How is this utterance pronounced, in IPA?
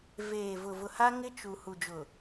veː˨ vʊ˨ vʊ˨ha˦ŋɪ˦ t͡ʃu˨ hu˨d͡ʒʊ˨

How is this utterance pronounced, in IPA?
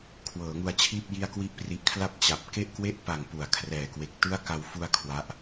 kʰwɤː˩˦ŋu˧a̯t͡ɕʰiː˥˩p̚ ji˦˥a̯kwi˦˥ʔpri˨˩ʔkʰla˥˩p̚ t͡ɕa˨˩p̚ ke˥˩ʔkwe˥˩ʔ pa˨˩ŋpu˩˦a̯ kʰrɛː˨˩kwe˨˩k̚tɯ˥˩a̯ ka˧w fu˧a̯ kʰwa˦˥ʔ

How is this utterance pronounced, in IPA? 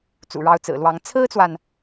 t͡sṵ˨˩ɻɑ˧˥ʊ̯t͡sɹ̩˨˩lwɑ˧˥ŋ t͡sʰɹ̩˥t͡swa˨n

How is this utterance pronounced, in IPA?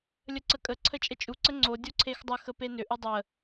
lʲəǀəkʼə ǀʰət͡ʃʼət͡ʃʼu ǀəŋ͡ǀo dʲoǀʰexdˤə xəpenʏ ʔudˤə

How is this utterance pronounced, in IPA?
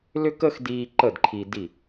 lʏ˦kə˦xdiː˧ ǃə˦˨dǃʰi˧di˦˨

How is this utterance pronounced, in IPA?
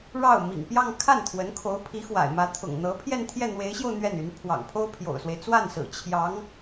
ɻɑ˥˩ʊ̯ mḭ˨˩ŋpjɑ˥˧ŋ kʰa˥˩nt̪ʰwə˧˥nkʰo˧˥ʊ̯ pʰi˧˥ xwa̰˨˩ɪ̯mä˧˥ t̪ʰʊ̰˨˩ŋ n̪ɤ˧˥ pʰjɛ˥˧nt̪ʰjɛ˥˩n̪we˧˥ɪ̯ɕjo˧ʊ̯ n̪ɥɛ˥˩ny˧˥n pʰwɑ̰˨˩ŋpʰo˥ʊ̯pʰjo̰˨˩ʊ̯swe˦ɪ̯ t͡swa˥˩nsɹ̩˨˩ t͡ɕʰjɑ˧˥ŋ

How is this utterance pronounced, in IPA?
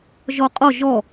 ʒɔqʼɔ ʒɔ

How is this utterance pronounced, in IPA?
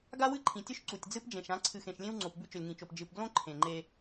ɡa˦wɨ˦ǃʰĩ˨tʲɵ˦ʃ ǀu˨tʲd͡zɨ˦pd͡ʒẽ˨ʃ ã˨˦ǀʰɨ˨xẽ˨ʃlʲẽ˦w ŋ͡ǀo˨pbʉ˦ t͡ʃɵ˨lʲŋĩ˨t͡ʃo˨p d͡ʒɨ˨pɡlõ˦ ǃʰẽ˨ŋ͡ǃe˦

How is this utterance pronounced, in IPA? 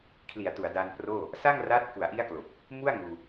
kʰli˩˦a̯tu˩˦a̯ daː˧nproː˥˩ | sa˥˩ŋra˦˥t̚ ku˩˦a̯ʔi˦˥a̯klo˨˩k̚ | mu˥˩a̯ŋuː˧

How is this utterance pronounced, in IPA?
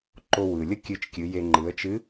ǃo˧wɯ˩lʲə˥ kʲɨ˧t͡ʃkʲɨ˩˧je˧ ŋ͡ǃɯ˩˧ə̯t͡ʃɨ˧˥

